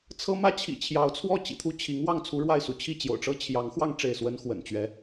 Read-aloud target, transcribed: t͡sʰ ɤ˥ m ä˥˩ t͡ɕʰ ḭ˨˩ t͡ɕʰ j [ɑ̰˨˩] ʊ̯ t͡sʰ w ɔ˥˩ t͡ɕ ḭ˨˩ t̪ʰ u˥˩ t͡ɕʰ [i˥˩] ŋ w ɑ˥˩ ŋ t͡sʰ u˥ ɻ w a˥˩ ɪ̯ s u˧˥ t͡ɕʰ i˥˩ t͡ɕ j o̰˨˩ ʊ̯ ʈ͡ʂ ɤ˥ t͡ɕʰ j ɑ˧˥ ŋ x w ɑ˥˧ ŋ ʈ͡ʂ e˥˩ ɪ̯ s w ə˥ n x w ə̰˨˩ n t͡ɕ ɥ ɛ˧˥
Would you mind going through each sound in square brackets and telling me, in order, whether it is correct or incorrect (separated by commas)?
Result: incorrect, incorrect